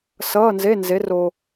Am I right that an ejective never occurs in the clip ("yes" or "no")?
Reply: yes